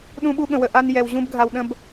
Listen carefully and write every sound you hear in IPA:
ɗ ũ˥ ɓ u˥ ɠ ə̃˧ w ə˧ ʔ a˥ n j ɛ˧ w ʑ ũ˥ b ɡʱ a˧ w ɗ ə̃˥ b

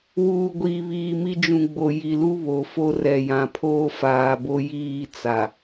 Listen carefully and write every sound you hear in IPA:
w uː˨ ɡʷ i˨ β iː˨ m i˦ d͡ʒ ũ˨ ɡ͡b o˨ j i˨ l u˦ β o˨ f o˦ r ɛ˨ j ã˨ pʰ oː˦ f aː˨ b o˦ j iː˦˨ t͡s a˨

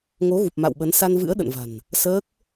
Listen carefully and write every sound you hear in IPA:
ŋ o˨˦ ɣ u˨˩ p̚ m a̰˧˨ w ɓ ə˨˦ n s a˧ n v ɨ̰˧˥ ə̯ ɗ ə̰˧˨ n v a̤˨˩ n | s əː˦˥ k̚

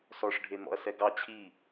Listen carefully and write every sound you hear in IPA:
s ɔ ʂ ɖʱ e n̪ ɔ̰ ɐ̯ s ɛ ɡ ɑ t͡ɕʰ i

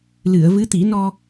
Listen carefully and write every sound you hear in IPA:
l ɨ˨˩˨ ə̯ v ɨ˧˥ t̪ i˨˩˦ n ɔ˧

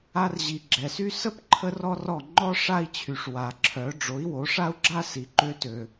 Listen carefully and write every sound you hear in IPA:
a˧ r ʑ i˩ ɡ͡ǁ ɛ˩ s y˥ s ə˥ p ǃʰ ə˥ r ɔ˥ r ɔ˥˩ ŋ͡ǃ ɔ˥ ʂ a˥ i̯ t͡ɕʰ y˩ ʂ w a˩ ǁʰ œ˩˥ ɖ͡ʐ o˩˥ i̯ w o˩˥ ʂ a˥ u̯ ɡ͡ǁ a˥ s i˩ ǃ ø˧ t ø˩

